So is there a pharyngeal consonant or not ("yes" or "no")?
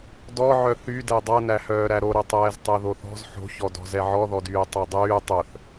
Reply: yes